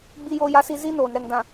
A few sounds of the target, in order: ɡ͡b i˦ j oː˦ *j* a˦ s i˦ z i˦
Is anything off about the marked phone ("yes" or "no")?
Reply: no